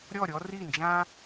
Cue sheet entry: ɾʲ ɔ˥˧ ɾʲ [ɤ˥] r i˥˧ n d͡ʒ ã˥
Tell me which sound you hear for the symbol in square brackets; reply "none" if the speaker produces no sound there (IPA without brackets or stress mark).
ɔ˥